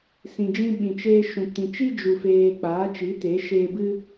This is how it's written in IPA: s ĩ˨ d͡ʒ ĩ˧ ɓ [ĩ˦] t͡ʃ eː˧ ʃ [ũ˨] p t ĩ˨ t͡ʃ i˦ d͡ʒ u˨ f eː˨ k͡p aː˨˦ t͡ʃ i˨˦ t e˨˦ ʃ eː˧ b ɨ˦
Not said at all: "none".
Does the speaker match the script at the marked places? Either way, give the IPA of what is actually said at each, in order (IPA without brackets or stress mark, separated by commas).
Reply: ĩ˨, ũ˨